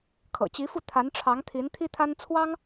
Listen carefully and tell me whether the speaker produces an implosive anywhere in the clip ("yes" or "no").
no